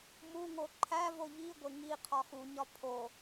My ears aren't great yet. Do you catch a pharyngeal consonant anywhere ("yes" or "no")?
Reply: no